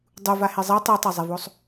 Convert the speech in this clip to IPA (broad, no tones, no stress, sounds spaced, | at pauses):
dˤ u v a h e zˤ ɛ tˤ ɯ tˤ a zˤ e v o sˤ